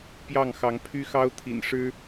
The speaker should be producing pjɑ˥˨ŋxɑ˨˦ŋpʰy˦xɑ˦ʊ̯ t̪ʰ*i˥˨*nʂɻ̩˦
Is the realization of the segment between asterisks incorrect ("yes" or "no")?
yes